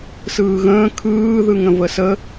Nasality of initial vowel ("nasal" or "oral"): oral